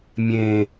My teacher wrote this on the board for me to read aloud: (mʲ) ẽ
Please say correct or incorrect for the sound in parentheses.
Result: correct